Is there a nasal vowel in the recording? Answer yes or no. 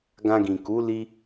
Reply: yes